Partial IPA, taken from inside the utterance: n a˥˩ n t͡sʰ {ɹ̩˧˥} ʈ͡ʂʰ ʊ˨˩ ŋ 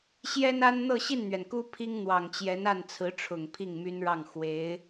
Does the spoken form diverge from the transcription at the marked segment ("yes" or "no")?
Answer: no